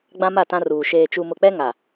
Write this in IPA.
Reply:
ɡ͡b ã˦ m a˦˨ t ã˦ r uː˨ ʃ eː˨ t͡ʃ u˨ m ʊ˨ k͡p ɛ˦ ŋ a˨

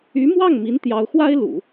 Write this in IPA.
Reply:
y˧˥ m w ɑ˥˩ ŋ m i˧˥ n t̪ j ɑ˧˥ ʊ̯ x w a˥ ɪ̯ l ṵ˨˩˦

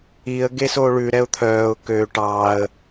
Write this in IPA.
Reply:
i ə̯ ɡ e s o ɭ ʉ ɾ ɛ ʊ̯ t̪ʰ œː ʊ̯ k ø ʈ ɑ ə̯

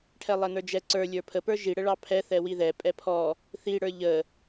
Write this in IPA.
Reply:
ʈʰ ɛ lˠ ɛ n ə˞ d͡ʒ ɛ ǀ ə˞ lʲ ə˞ pʰ ə p ə˞ ʒ i ɽ ə ɭ ɑ pʰ ɛ θ ɛ w i ð ɛ pʼ ɛ pʰ ɔ | θ i ɽ ə˞ ʎ ə

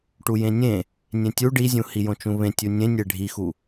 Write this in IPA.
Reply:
ʈ u j ẽ nʲ ẽ | nʲ ẽ tʲ u ɖ i zʲ ũ h i j õ t͡ʃ ũ β ẽ tʲ u nʲ ẽ nʲ e ɖʱ i x u

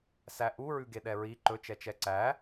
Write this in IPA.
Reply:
s æ ʔ u ɹ ʉ ɡ e ɗ ɛ ɹ i ǃ ɵ t͡ʃ ɛ t͡ʃ ɛ ǀ æ

